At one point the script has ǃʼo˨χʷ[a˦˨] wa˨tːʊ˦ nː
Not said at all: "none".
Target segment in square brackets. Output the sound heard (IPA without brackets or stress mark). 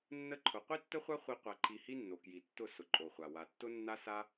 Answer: a˨